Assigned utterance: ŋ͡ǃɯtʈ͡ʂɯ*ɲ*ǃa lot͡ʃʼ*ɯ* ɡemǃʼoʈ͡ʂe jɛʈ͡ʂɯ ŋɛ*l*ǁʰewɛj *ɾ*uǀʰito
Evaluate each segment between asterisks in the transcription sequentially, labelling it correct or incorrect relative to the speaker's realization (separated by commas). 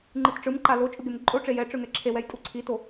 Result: incorrect, correct, incorrect, incorrect